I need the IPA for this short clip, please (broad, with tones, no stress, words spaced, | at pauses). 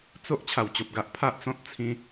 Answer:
t͡so˦ʔ t͡ɕʰa˨˩wt͡ɕo˨p̚ɡa˦ʔ pʰa˦ʔt͡sɔ̃˦t̚t͡sʰĩ˧